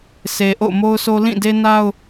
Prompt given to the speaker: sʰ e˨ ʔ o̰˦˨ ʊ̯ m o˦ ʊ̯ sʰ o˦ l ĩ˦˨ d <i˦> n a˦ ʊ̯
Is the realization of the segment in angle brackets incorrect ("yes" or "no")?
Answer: yes